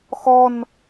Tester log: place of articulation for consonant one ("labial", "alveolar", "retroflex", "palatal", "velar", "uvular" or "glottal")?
velar